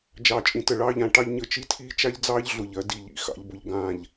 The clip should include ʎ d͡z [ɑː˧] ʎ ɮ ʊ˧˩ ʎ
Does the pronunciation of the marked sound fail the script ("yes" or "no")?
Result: yes